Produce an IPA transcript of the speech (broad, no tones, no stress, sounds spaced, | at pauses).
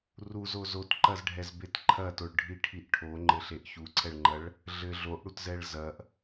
r u z o z o t ǃ ɐ z ɖʱ ɛ z b e t ǃʰ ɐ t o ɭ ɖʱ i ʈʰ i ʔ ʈʰ o ŋ͡ǃ ɘ ɬ e ʔ ç u ǀʰ ɛ ɭ ŋ͡ǃ ɐ ɭ | ɮ ɘ ɮ o ʔ ɽ u t z ɛ ɭ z ɐ ʔ